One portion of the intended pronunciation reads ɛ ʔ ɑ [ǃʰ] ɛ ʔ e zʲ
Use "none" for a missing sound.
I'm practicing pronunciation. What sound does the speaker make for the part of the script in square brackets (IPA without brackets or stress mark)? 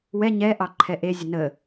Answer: ǃʰ